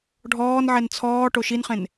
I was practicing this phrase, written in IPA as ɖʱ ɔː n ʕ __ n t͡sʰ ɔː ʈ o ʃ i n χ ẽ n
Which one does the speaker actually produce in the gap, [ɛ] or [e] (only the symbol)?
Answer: ɛ